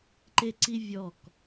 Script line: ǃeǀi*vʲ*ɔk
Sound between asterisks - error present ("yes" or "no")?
no